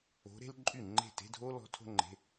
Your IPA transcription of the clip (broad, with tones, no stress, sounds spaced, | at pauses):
o̤˧˥ ɾ e̤˥ l ǃʼ y˥˩ ŋ͡ǃ e̤˥˩ t e̤˧˥˧ dʱ o˥ l ɔ̤˧˥ tʰ o̤˥ ŋ͡ǃ e̤˧˥˧